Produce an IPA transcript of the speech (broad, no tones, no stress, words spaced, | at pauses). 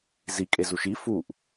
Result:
zikʼezuʃ i fuʔ